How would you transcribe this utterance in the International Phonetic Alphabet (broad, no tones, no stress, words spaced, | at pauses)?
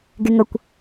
ɡeŋʌkʷ